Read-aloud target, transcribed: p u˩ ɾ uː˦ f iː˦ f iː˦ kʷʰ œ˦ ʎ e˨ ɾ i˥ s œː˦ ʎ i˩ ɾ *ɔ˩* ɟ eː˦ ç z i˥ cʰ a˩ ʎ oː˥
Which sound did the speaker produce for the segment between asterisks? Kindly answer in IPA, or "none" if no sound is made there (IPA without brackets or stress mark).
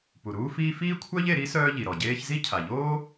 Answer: ɔ˩